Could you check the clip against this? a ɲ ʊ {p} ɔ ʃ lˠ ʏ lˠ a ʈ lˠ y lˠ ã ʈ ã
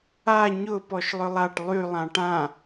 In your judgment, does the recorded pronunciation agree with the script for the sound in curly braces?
yes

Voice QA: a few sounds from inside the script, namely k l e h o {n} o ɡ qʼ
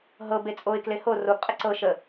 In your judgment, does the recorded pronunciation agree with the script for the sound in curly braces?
no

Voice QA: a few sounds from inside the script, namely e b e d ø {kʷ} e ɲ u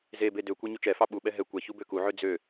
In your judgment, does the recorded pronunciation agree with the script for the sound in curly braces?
yes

